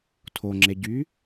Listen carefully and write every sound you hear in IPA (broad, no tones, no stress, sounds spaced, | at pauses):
tʰ o ŋ͡ǁ e ɟ y